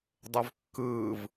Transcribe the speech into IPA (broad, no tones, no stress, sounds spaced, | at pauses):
dˤ ʏ v kː ɯː v